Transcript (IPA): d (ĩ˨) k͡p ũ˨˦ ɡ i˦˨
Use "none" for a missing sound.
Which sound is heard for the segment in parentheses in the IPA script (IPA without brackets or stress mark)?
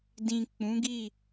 ĩ˨